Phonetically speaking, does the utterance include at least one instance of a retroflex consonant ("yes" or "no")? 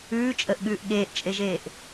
no